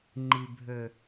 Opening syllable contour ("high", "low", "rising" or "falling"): low